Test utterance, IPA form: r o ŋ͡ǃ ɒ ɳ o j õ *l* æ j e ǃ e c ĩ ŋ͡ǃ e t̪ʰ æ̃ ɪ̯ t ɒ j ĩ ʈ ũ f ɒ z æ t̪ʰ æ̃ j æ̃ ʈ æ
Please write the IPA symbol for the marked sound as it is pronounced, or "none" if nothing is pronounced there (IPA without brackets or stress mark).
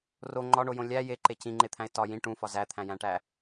lʲ